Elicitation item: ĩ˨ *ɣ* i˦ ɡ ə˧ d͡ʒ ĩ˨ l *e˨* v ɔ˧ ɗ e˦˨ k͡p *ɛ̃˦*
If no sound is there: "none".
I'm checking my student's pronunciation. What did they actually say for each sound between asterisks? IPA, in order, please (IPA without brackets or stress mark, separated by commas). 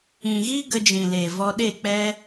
ɣ, e˨, ɛ˦